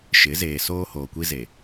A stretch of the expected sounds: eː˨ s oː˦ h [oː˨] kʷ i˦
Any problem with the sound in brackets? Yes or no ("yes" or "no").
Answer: no